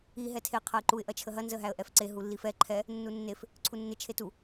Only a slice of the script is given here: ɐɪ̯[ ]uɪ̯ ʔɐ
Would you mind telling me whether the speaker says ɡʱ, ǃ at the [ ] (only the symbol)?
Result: ǃ